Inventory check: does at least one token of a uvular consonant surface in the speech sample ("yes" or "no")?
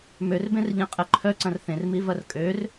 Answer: yes